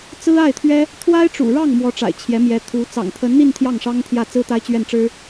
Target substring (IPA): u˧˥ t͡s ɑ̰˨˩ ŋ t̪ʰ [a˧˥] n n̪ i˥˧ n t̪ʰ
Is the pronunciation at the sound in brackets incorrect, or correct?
incorrect